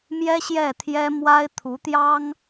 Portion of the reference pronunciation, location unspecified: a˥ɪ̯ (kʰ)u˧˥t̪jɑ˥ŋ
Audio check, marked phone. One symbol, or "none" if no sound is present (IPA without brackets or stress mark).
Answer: t̪ʰ